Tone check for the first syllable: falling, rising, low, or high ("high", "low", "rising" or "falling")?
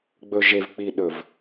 low